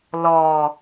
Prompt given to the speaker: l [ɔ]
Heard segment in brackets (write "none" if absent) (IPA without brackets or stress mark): ɔ